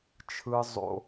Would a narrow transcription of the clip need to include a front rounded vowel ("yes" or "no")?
no